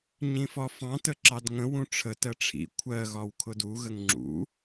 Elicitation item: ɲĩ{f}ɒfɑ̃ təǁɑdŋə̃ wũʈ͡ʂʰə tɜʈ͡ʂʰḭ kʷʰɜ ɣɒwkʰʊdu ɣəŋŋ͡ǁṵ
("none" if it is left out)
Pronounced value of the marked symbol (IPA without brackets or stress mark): f